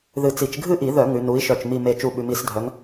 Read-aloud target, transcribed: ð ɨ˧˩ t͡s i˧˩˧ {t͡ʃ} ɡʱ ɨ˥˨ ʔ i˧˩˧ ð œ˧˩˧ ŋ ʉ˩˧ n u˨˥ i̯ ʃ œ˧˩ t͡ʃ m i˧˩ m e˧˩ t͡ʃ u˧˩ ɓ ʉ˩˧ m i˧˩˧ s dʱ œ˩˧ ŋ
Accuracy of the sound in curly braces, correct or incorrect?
correct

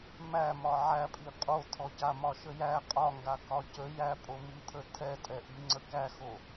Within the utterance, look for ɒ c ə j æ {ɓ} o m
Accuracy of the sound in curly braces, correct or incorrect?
incorrect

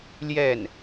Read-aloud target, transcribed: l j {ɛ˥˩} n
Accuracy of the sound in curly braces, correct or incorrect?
correct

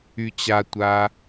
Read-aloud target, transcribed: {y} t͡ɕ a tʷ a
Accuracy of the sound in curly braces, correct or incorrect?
correct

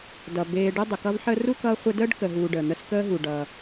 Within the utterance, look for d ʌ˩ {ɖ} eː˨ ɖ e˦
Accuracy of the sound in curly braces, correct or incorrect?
incorrect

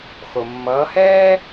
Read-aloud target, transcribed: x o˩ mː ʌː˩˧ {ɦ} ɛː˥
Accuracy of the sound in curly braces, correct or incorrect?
incorrect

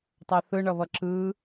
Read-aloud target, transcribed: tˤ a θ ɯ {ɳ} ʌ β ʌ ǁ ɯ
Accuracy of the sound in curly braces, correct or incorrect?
correct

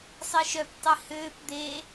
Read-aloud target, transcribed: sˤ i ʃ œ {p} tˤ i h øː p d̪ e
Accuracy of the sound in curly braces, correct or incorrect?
correct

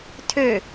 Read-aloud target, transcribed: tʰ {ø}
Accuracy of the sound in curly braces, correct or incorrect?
correct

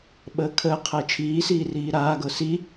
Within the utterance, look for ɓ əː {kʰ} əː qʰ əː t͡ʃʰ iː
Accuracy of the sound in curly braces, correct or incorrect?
correct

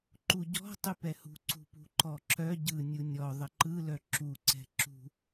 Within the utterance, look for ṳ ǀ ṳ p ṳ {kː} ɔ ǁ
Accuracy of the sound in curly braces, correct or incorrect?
incorrect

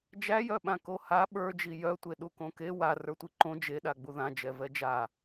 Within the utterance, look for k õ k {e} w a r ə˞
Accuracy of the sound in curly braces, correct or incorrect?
correct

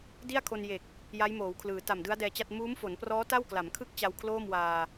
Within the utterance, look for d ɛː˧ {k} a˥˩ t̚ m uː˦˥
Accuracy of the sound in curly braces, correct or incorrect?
incorrect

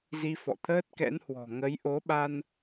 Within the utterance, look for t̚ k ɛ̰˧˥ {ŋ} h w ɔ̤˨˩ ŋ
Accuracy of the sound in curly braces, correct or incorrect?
incorrect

